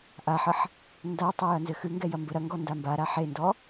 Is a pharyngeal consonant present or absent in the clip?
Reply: present